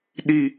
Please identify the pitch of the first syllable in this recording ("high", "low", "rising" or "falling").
falling